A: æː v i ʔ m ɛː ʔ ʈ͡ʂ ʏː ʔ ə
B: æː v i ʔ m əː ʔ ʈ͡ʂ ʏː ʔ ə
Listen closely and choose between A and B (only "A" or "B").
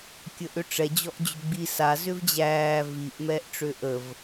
A